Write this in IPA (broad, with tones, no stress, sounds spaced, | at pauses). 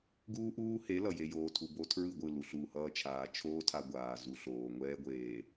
ɡ uː˦ ʔ uː˦ h e˨˦ l ʌ˨ j e˨ j oː˨ tʰ u˨ b o˦ tʰ ɹ ɯ˦˨ ɡʷ ɯ˦˨ l u˨ ɬ uː˨ h ʌː˦ t͡ʃʰ aː˨ t͡ʃʰ oː˦ tʰ a˨ ɡʷ aː˨ z u˨ ɬ oː˨ ŋʷ ɛː˦ ɡʷ eː˨